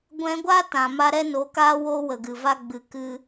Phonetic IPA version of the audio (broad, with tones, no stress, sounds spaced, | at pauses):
ɡʷ ɛ̃˧ ɡʷ a˦ t ã˨ m a˦ ɾ ɛ˦ n o˨˦ k aː˦ w oː˦ w ə˨ ɡ ɨ˨ v a˦ ɡ͡b ɨ˧ k ɨ˦